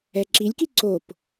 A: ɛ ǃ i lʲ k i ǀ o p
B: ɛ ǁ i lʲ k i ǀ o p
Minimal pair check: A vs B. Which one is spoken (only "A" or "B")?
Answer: B